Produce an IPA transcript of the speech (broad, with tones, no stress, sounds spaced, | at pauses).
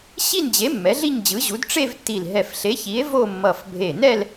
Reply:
ɕ i˥˧ n d͡ʑ e˨˥ mː ɛ˨˥ ɮ i˥˧ ɲ d͡ʑ ɯ˨˥ ʑ u˨˥ d ʈ͡ʂ e˥˧ v tː i˧˩ l ɦ ɛ˧˩ f ɬ e˨˥ ç i˨˥ e̯ v o˥˧ mː ʌ˧˩ f bʱ e˧˩ n ɛ˥˧ l